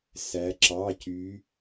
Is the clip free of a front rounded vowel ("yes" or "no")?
no